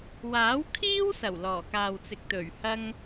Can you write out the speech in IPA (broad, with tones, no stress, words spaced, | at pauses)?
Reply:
waː˨˥w kʰiː˥wsɐ˨˩w lɔː˨˩kaː˨wt͡sɪ˨k̚t̪ɵ˨˩ɥ hɐ˥ŋ